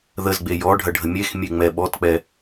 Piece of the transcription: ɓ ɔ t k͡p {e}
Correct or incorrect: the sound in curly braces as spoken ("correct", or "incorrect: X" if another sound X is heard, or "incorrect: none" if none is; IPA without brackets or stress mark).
incorrect: ɛ